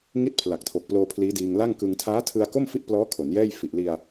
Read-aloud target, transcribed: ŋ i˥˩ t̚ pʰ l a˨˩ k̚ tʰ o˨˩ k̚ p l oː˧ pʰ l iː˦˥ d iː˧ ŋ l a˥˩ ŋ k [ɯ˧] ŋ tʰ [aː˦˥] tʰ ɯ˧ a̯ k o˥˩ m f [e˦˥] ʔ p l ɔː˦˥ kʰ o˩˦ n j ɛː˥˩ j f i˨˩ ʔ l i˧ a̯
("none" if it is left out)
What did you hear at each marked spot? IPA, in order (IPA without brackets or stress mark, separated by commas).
ɯ˧, aː˦˥, i˦˥